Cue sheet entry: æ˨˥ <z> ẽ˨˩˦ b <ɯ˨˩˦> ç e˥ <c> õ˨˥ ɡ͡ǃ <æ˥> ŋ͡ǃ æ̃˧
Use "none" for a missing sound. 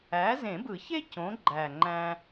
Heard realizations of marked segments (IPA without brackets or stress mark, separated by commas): z, ɯ˨˩˦, c, æ˨˩